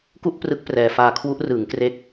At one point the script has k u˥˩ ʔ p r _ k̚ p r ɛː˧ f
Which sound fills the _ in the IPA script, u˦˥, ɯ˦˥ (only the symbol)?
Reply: ɯ˦˥